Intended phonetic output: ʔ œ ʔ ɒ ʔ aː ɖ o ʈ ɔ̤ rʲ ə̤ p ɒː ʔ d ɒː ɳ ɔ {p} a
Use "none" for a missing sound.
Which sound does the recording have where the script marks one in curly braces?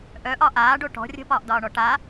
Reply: ʈ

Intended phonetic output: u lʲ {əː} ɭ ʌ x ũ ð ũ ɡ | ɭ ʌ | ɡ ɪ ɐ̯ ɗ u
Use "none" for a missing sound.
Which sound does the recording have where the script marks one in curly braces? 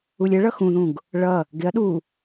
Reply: ə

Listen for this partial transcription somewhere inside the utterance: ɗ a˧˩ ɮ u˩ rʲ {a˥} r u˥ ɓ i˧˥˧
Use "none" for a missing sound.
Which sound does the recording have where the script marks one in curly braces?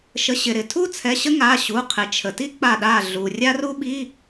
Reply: a˥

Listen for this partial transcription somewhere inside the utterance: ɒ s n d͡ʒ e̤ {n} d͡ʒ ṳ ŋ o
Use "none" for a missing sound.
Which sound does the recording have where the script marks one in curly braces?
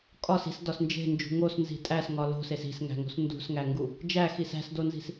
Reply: n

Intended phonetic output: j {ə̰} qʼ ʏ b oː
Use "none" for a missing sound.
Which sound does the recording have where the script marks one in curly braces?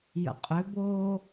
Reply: ə̰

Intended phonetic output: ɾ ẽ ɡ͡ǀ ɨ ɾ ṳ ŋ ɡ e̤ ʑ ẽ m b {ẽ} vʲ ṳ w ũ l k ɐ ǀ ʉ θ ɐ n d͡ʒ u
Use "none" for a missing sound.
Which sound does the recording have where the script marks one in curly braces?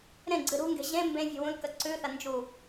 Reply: ẽ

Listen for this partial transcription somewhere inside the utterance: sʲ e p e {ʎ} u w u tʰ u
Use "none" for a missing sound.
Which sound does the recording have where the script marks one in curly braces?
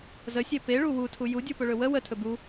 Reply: ɭ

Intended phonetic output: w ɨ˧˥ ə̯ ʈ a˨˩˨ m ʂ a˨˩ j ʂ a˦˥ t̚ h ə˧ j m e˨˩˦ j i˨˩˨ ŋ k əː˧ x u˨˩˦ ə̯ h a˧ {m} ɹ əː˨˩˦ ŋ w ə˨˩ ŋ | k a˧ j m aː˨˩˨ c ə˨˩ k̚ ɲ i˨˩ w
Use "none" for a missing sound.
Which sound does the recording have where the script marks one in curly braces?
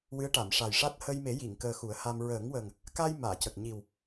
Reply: m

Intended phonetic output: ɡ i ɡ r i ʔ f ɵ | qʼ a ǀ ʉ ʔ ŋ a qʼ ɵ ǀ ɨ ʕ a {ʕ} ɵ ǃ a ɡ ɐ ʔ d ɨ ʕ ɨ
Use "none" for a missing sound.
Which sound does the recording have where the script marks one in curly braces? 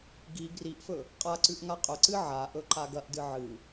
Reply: ʔ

